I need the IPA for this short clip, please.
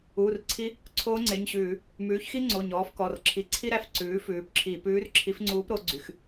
uː˩˧˩rǀʰi˧˥ | ǀʰoː˧˥ŋ͡ǀe˩˧˩ɲɕʉː˧˩˧ | mʉː˩˥çxi˥ŋ͡ǀo˩˧˩ ɲɔː˩˥fkɔ˩˧˩rǁʰi˧˩˧ ǀʰi˥ɾæ˧˥f ǀʉː˩˥fʉː˩˥pǁʰi˧˩˧ pʉː˧˥rǁʰi˧˥fŋ͡ǀuː˧˥pɾo˩˥ ɡ͡ǀy˩˧˩x

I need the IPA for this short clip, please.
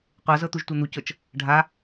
qʷɤzɤ t̪uʒtʷɤn̪ucɤt͡ʃ | ɖʱa

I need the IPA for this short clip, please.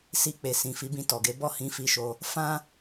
si˧k͡pe˨sĩ˨ fi˨˦bĩ˧tɔ˨ɡe˨˦ bɔ˦˨hĩ˨˦fi˧ʃo˧ | fã˦

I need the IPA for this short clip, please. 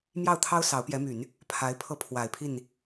mjɑ˥˩ʊ̯t̪ʰɑ˥ʊ̯ sɑ˧˥ʊ̯pjɛ˧˥my˨˩˦n | pʰa˧˥ɪ̯pʰɤ˥pʰwa˨˩ɪ̯pʰi˥˩n

